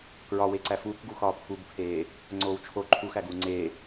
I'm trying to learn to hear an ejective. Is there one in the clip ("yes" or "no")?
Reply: no